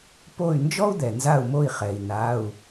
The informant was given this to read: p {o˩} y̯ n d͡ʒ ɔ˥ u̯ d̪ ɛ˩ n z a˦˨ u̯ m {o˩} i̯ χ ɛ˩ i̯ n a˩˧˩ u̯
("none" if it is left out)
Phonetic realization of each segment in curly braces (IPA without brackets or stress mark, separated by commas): o˦˨, o˦˨